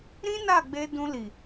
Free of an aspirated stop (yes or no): yes